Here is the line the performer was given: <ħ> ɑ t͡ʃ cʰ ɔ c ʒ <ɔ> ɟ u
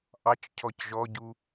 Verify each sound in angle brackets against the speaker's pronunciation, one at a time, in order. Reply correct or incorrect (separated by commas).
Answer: incorrect, correct